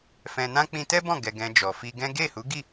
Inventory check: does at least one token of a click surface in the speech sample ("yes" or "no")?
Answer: no